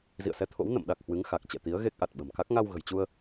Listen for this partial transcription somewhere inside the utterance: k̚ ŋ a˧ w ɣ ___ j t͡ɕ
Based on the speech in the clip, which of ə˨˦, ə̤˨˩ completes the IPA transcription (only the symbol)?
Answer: ə̤˨˩